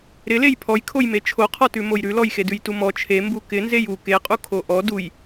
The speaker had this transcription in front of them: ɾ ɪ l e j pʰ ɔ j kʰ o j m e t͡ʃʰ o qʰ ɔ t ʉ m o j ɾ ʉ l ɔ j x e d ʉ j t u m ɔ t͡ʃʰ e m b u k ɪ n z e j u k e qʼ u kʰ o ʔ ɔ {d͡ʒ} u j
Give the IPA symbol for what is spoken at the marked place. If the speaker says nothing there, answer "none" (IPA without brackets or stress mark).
d